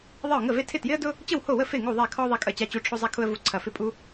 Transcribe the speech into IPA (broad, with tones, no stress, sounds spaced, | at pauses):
ðˤ ɪ˥˨ ʊ̯ ŋ ə˥˨ v e˥ tʰ ɪ˥˨ t j ɪ˥ ə̯ d ʊ˥ | t͡ɕ ə˥˨ w h o˥˨ w ə˥˨ f e˥˨ ŋ u˥˨ ðˤ ɛ˥˨ kʰ ɔ˥ ðˤ ɛ˥ kʼ ɐ˥˨ t͡ɕ a˥ t͡ɕ u˥ ʈ͡ʂʰ o˥ zˤ a˥ kʰ ʊ˥ ə̯ v u˥ ǀʰ ɐ˥˨ f ɪ˥˨ pʼ u˥